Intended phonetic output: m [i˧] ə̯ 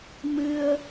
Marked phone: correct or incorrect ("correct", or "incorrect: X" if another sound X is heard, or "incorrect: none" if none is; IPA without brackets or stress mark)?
incorrect: ɨ˧